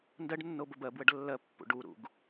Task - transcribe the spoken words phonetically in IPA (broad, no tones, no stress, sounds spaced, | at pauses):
n d ɜ ɖ nː o b ə b ɜ b w ə ɖ lː ɜ pː ṵ ɖ u ɾ ṵ ɡ